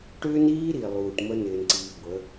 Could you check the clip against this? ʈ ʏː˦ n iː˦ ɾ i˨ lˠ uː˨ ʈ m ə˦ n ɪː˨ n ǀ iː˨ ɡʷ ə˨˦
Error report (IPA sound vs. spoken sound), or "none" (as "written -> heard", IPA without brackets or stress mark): none